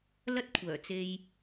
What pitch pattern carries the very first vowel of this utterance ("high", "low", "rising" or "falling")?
high